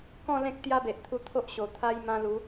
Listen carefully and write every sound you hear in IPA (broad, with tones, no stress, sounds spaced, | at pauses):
k ɔ̃˥˧ l ẽ˦ k̚ t̪ j a˦ b e˨ ʔ t̪ʰ u˧ t̪ʰ o˦ ʔ ɕ o˨˩ t̪ʰ a˧ j m ã˧ l u˨˦